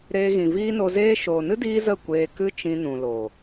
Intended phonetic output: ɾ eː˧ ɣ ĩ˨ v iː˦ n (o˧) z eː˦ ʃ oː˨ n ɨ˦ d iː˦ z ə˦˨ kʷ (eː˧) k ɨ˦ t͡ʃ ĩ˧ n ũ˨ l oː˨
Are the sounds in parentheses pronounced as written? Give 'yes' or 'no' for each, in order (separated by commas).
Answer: yes, yes